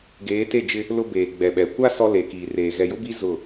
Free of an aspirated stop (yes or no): yes